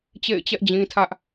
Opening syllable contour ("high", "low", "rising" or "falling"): falling